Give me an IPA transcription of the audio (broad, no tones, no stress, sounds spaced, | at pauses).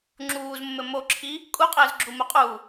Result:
ŋ͡ǁ uː z mː ɘ m o ǁʰ i | kʼ u qʼ ɘː z ɡ͡ǁ u m u qʼ u